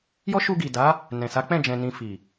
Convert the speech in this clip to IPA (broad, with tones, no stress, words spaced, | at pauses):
jɔ˦ʃu˧ɡi˨da˨˦ | nɛ̃˨sa˨˦k͡pɛ̃˦˨ d͡ʒɛ̃˨ nĩ˨ fi˨